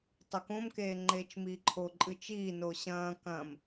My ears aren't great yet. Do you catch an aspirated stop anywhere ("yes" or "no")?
yes